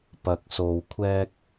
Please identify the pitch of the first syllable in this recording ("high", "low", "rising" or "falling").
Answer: low